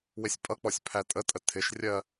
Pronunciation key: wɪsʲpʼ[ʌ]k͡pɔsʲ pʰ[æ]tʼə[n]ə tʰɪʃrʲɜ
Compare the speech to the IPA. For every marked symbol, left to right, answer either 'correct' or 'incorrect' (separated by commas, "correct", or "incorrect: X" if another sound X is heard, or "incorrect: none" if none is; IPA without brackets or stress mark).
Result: correct, correct, incorrect: tʼ